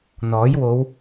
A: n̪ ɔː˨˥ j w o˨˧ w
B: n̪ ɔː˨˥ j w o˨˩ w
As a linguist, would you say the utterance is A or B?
A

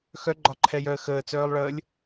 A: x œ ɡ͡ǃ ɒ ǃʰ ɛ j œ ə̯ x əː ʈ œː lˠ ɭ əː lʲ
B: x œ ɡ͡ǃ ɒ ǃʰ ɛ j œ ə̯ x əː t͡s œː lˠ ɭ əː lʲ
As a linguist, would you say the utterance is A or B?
B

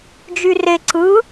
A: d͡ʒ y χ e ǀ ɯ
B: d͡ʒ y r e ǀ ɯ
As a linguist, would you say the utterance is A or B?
B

